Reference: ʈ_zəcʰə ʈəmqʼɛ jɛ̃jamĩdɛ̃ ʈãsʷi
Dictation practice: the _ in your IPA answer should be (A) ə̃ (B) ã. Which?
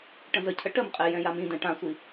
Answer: A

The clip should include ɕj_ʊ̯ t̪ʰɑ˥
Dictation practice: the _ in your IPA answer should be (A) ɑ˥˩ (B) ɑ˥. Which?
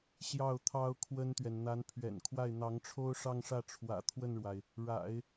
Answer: A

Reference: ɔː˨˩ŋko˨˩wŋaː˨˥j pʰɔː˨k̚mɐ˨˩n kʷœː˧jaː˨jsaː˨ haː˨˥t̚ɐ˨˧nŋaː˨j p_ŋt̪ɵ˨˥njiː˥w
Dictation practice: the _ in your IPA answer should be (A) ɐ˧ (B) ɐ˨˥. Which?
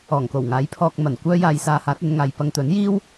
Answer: A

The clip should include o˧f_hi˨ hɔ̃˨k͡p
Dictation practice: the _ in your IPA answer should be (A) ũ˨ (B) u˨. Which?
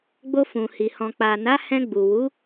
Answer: A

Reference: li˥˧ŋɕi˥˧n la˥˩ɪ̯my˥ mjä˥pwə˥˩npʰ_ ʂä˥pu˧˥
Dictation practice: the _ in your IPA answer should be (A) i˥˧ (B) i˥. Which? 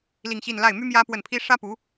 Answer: B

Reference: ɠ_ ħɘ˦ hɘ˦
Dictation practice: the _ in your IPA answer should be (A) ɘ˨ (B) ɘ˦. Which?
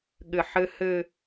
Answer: A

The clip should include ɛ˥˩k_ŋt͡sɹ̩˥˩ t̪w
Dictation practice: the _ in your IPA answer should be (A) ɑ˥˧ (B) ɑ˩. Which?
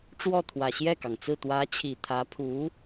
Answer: B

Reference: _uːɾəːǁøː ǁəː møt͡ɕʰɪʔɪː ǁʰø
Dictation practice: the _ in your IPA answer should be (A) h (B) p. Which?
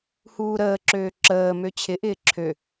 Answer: A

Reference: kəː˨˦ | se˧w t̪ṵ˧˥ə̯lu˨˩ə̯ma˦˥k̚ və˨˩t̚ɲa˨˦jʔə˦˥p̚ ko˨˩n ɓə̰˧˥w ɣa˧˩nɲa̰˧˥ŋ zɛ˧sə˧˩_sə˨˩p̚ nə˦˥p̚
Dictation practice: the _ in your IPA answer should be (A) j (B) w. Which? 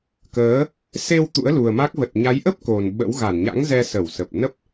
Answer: B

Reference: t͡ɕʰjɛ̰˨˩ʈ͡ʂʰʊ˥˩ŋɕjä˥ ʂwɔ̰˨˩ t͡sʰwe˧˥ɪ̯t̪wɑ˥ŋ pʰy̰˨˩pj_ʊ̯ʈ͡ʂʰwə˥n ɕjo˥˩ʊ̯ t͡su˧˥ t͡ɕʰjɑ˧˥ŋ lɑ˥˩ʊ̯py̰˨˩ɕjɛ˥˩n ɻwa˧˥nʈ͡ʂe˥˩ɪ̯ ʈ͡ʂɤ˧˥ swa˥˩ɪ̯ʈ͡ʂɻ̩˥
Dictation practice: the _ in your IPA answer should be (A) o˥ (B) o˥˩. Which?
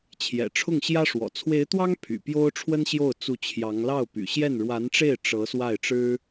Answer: A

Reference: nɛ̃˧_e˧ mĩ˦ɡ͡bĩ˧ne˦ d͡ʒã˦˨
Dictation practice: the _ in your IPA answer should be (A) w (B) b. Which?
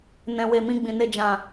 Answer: A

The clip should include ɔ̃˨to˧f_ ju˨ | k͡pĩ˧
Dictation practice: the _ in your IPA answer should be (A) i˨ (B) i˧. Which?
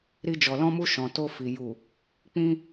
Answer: A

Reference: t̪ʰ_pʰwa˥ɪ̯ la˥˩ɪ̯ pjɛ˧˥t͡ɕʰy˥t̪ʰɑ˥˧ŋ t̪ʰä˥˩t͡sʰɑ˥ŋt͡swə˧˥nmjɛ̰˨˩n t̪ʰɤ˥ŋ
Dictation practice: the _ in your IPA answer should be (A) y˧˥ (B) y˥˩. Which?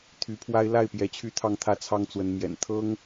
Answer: A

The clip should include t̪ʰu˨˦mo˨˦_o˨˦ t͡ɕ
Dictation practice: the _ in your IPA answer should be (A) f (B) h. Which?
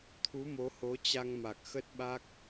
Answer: B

